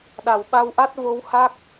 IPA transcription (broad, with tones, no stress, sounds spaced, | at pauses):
ɗ a˨˩ w ɓ a˧ w ʔ a˦˥ t̚ v o˧˥ w h a˦˥ k̚